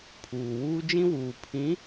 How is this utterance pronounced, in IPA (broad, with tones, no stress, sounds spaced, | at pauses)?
pʰ uː˨ w uː˦ d͡ʒ ĩ˦ w uː˨ pʰ ĩ˨˦